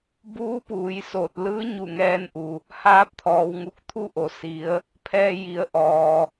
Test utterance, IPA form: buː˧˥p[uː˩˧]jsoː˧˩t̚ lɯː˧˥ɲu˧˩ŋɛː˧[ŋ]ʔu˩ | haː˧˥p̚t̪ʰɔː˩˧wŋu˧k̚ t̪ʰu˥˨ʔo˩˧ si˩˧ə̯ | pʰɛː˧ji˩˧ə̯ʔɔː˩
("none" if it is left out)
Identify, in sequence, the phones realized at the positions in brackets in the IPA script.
uː˩˧, n

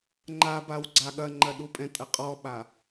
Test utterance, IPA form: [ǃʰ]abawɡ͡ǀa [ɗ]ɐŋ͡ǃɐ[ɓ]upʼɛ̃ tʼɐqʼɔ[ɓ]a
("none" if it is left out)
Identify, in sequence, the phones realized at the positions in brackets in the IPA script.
ŋ͡ǃ, ɠ, ɗ, ɓ

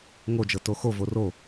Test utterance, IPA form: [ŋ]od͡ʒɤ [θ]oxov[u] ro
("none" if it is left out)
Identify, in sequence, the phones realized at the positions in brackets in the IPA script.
ŋ, t, o

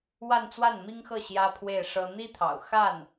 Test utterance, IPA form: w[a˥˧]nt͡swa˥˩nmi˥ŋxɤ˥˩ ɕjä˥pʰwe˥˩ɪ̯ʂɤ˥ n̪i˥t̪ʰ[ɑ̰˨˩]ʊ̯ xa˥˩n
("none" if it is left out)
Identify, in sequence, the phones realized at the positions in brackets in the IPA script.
a˥˧, ɑ̰˨˩

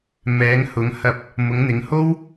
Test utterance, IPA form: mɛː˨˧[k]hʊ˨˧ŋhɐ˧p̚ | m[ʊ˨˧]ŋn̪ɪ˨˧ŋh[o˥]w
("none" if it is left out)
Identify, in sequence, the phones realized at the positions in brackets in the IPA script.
ŋ, ʊ˨˧, o˥

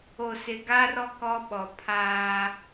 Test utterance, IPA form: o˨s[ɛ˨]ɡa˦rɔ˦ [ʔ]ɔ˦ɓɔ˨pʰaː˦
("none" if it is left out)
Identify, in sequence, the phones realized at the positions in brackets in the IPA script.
ɪ˨, k

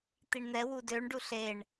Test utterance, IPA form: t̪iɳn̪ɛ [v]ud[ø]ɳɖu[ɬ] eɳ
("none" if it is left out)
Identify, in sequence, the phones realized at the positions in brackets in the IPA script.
w, ø, ɬ

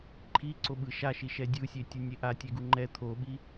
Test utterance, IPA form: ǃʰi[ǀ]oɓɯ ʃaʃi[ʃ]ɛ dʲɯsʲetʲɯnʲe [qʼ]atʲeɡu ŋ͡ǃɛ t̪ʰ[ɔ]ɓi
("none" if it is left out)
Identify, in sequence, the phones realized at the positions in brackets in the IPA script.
ǀ, ʃ, ʔ, o

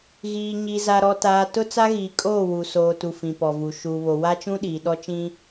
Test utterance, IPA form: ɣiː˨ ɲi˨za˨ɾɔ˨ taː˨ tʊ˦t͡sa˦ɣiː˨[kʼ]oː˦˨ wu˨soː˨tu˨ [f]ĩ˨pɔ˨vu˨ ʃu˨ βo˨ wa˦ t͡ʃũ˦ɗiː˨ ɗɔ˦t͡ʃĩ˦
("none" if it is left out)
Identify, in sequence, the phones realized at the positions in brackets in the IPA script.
kʼ, f

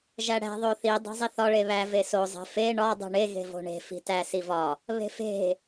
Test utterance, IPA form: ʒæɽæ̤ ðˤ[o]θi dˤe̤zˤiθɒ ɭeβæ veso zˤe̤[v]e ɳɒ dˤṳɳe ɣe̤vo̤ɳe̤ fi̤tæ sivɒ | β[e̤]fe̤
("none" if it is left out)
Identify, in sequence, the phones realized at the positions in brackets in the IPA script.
o, f, e̤

